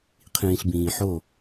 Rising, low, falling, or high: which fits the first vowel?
low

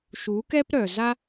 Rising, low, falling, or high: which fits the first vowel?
rising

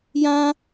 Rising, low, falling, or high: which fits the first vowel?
high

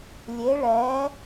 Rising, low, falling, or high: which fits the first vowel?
rising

